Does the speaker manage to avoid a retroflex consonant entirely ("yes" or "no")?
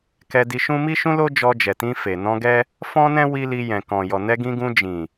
yes